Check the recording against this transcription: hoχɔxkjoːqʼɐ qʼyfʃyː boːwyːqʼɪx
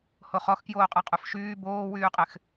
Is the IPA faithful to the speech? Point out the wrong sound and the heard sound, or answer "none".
none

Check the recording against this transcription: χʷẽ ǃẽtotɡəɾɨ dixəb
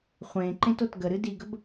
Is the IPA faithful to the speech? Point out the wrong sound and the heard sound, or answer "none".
x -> ɡ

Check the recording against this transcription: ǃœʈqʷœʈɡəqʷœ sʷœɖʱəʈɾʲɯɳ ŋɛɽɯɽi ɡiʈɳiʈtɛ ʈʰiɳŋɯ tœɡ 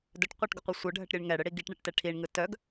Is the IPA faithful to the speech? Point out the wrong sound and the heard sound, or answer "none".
ǃ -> d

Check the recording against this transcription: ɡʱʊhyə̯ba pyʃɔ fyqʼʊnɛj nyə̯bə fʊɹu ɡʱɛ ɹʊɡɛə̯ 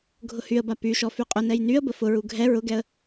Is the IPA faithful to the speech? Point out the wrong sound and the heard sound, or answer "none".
none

